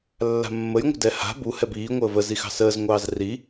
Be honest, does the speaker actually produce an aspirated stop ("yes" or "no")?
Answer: no